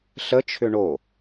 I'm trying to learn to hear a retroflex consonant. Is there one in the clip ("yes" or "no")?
yes